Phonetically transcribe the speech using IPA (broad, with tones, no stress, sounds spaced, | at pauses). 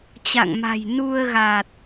t͡ɕ a̰˧˨ ŋ m a̤˨˩ j n u˧ ə̯ ɣ a˨˩ t̚